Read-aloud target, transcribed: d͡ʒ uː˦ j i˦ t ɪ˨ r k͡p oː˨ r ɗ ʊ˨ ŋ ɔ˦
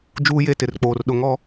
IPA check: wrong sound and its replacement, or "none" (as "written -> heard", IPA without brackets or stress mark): i˦ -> e˦